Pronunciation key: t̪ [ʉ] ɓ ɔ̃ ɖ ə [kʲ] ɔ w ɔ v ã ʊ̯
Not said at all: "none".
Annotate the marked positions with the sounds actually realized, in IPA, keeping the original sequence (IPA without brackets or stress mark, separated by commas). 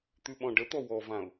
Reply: ʉ, t̪